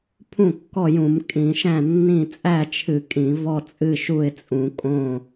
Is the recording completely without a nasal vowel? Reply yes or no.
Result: no